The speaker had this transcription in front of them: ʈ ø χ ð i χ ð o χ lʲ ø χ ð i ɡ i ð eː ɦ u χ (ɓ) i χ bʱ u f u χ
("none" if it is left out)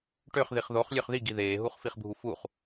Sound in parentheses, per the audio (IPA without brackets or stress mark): f